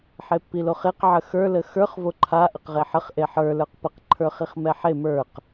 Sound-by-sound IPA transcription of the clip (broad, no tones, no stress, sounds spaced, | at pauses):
ħ e pː i l o χ e q ʕ ə x ə˞ l ə x ə˞ χ v o ǃʰ a ʔ ə q ʁ e ħ ə χ ʔ e ħ ə˞ l ə˞ q p ə q ǃʰ ə˞ χ i χ m ɛ ħ e m ə˞ q